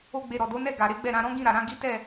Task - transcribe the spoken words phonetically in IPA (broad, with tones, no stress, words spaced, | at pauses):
o˦ɡ͡be˧ɾɔ˨ do˨˦nɛ˦˨ ɡa˨ɾe˨˦ɡ͡bɛ˦˨ɾã˧ ɾɔ̃˦ɡĩ˦˨ ɾa˨ɾã˨˦ ɡi˦tɛ˦˨